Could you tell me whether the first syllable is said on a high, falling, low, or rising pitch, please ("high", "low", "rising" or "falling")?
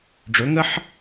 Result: rising